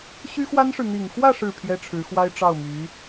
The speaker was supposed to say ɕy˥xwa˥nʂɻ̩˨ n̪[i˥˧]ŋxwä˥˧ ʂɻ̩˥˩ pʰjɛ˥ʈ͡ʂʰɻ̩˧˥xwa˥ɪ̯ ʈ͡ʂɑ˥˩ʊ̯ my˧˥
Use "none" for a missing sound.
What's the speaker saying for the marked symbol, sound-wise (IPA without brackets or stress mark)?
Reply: i˨˩